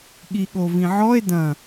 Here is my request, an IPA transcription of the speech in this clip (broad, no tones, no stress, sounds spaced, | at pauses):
ɠ i ɠ o v ĩ ʕ ɔ e̯ d ɐ̃